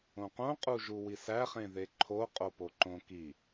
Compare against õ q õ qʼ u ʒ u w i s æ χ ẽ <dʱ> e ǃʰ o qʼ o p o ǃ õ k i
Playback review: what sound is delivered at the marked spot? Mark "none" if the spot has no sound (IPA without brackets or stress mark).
ð